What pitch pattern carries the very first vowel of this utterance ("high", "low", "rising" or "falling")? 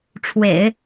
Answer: low